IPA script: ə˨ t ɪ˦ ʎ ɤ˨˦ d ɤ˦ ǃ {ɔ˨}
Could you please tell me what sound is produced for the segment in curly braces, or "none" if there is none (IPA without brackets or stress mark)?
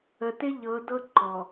ɔ˨